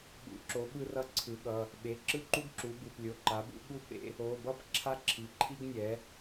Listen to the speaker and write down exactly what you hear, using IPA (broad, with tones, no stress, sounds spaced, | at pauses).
ɓ ṵ˩˥ ǁ o˩˥ ɓ ɯ˥ r ʌ˥ ǀʰ ɯ˩˥ ɠ ʌ˩˧˩ | ɓ e˩˧˩ ǁ ɯ˥ ǃ u˥ ɡ ǁ u˩˥ b ɯ˩˧˩ p lʲ o˩˧˩ ǃ a˩˥ b ṵ˩˥ ɠ u˥ p ḛ˥ | o˩˧˩ b ʌ˥ p ǁʰ a˥ ǁʰ i˩˧˩ ǃʰ i˥ ɡ nʲ ɛ˩˥